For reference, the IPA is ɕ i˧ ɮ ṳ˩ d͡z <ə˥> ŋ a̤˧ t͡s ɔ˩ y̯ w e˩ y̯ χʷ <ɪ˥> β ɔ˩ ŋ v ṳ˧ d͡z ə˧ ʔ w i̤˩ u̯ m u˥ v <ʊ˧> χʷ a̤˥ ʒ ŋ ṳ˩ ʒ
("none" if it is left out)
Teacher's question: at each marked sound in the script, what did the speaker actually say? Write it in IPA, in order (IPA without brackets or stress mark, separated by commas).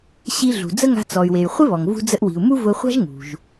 ə˥, ɪ˥, ʊ˧